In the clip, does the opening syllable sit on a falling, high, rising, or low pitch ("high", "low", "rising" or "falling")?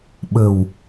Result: low